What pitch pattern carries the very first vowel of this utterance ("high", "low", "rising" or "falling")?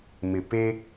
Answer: low